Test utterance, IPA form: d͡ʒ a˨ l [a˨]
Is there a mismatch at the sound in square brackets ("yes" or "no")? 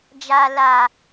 no